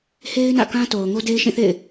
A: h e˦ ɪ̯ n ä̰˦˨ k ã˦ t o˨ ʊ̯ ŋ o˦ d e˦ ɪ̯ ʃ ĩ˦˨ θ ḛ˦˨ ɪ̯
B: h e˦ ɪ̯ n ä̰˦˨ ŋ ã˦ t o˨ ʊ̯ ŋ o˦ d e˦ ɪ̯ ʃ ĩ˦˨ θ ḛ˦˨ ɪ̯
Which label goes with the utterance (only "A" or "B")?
A